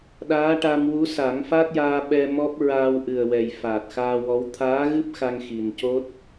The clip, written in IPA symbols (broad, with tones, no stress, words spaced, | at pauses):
ɗaː˧˥ʈa˧mwu˧˥ sa˨˩˦ŋfa˦˥t̚jaː˧ ɓɛ˧ mɔ˦˥p̚ɹaː˧wʔɨ˨˩ə̯wɛ˨˩j faː˨˩t̚xaː˧wɔ˧˥w t̪ʰaː˧˥ɣɨ˦˥p̚ xa˧ŋ xi˨˩nco˦˥t̚